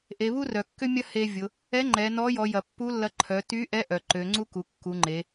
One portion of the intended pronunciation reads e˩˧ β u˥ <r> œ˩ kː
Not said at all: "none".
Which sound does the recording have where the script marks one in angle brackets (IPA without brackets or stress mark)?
r